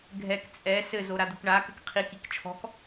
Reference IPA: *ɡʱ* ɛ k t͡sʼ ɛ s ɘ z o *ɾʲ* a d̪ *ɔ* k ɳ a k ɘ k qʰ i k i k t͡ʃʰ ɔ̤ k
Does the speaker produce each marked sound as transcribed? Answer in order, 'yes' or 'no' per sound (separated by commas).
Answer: yes, no, no